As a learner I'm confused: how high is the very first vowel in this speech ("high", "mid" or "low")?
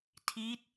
high